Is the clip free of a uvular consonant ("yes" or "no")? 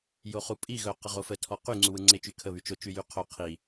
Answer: no